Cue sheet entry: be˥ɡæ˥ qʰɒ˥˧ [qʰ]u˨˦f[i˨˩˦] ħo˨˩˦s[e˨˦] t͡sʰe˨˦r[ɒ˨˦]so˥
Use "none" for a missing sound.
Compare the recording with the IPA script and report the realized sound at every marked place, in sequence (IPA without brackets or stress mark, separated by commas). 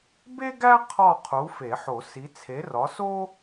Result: qʰ, e˨˩˦, i˨˦, ɒ˨˦